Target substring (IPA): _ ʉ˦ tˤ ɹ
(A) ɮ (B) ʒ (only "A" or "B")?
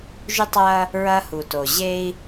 B